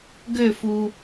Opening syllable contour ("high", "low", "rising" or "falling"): falling